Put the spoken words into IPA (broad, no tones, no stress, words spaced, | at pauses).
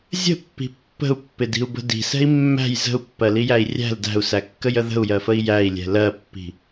zʲə̤pːi̤ pːə̤u̯pːɪdi̤u̯bə̤ di̤sɛ̤i̯ mːæ̤j zə̤u̯pːɜlijæi̯ rʲæ̤l dæ̤u̯sækːəjə ðə̤u̯jɜfəi̯ jæi̯lʲɛ̤ lɜpːi̤